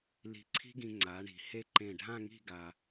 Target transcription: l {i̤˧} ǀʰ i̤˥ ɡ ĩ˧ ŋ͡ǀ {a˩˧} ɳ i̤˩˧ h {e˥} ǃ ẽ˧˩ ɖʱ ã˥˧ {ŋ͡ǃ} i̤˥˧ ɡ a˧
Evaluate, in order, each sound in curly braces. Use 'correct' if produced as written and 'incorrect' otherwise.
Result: incorrect: i̤˧˩, correct, correct, incorrect: ŋ

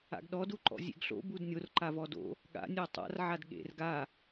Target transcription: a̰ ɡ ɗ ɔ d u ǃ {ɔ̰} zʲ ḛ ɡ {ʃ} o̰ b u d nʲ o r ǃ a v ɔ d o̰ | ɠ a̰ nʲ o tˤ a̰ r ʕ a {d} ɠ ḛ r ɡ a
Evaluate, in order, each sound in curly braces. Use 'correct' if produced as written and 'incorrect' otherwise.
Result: correct, incorrect: ɬ, correct

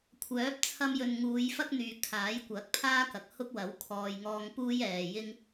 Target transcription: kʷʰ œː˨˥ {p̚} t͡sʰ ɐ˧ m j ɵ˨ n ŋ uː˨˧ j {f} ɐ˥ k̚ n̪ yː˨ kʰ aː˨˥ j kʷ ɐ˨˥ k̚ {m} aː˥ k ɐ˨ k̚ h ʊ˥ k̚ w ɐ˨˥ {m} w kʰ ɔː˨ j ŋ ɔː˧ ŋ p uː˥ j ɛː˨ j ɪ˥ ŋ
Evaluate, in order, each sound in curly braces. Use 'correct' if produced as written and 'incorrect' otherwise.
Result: correct, correct, incorrect: pʰ, incorrect: none

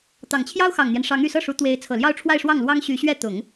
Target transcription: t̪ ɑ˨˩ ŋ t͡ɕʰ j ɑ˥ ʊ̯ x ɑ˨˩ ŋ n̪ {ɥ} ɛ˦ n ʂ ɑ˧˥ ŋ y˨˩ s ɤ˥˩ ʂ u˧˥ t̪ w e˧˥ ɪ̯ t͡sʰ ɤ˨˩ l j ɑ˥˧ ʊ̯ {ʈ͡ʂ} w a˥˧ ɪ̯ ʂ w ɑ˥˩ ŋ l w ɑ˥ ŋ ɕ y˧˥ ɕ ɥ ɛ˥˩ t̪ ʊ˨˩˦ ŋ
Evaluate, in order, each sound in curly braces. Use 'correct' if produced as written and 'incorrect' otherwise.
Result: incorrect: j, incorrect: ʈ͡ʂʰ

